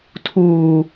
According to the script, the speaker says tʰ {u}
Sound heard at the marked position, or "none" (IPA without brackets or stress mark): uː